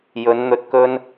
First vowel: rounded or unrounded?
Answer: rounded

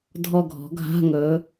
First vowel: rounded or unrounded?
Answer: rounded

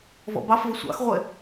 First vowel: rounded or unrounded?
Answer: rounded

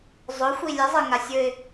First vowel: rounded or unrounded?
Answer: rounded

